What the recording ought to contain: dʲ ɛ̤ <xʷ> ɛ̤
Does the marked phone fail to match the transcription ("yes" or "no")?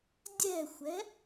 no